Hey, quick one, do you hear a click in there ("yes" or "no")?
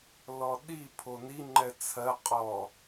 yes